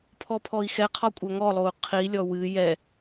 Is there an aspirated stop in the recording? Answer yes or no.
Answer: yes